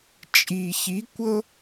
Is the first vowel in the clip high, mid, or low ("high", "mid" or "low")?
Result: high